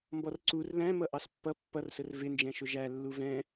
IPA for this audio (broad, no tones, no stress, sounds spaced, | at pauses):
m b ɔ r ǀ u r l æ̃ m ʌ ʔ ɑ s pː ʌ pː ʌ r s ə r v ɪ n d͡ʒ ɛ̃ ʃ ʊ ʒ æ lː u v ɛ̃